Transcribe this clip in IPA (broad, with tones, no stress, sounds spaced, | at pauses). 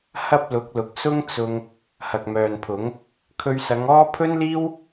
h ɐ˥ p̚ l ʊ˨˥ k̚ l ʊ˨ k̚ s ʊ˥ ŋ t͡s ʊ˧ ŋ | h ɐ˨ k̚ m œː˨ n pʰ ʊ˨˥ ŋ | kʰ ɵ˧ ɥ s ɐ˨˧ ŋ ɔː˥ pʰ ɵ˥ n l iː˥ w